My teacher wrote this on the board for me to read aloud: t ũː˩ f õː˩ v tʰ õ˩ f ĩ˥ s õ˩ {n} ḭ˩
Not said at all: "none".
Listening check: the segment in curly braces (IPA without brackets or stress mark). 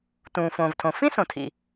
tʰ